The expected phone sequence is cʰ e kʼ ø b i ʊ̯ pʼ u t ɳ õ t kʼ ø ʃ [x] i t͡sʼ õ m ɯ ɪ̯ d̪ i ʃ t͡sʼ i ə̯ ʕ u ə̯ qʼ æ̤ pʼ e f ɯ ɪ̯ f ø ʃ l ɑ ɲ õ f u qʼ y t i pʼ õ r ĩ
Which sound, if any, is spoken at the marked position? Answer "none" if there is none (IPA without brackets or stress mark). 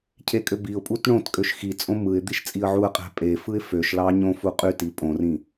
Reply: x